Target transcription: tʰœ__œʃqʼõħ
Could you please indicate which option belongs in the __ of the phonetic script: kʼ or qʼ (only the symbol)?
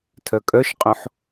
kʼ